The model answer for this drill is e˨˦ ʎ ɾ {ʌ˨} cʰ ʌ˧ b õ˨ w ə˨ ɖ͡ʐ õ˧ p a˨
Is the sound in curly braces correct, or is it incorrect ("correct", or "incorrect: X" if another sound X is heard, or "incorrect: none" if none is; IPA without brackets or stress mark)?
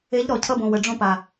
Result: incorrect: ɔ˨